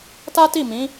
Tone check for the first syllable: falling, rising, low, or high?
high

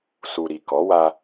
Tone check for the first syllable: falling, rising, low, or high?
low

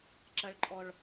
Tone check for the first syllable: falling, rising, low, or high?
low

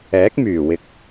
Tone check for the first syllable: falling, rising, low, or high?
rising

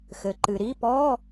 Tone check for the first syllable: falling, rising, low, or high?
low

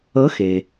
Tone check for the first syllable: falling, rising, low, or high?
rising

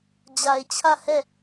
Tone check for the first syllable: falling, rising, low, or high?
low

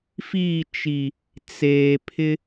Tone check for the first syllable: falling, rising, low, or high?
falling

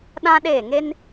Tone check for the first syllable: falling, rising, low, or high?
high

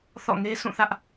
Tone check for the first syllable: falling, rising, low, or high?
falling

